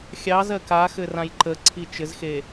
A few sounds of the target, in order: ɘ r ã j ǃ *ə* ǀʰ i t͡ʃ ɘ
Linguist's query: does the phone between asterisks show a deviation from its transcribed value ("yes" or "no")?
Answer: no